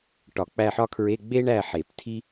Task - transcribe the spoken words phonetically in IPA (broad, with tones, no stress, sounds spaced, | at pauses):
ʈ ɒ˨˩˦ k͡p æ˦˨ ħ ɒ˥ kʰ ɹ e˧˥˧ ɡ͡b e˥ ɳ æ˦˨ ħ e˨˩˦ p tʰ i˥